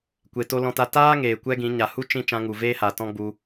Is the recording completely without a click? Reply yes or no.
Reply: yes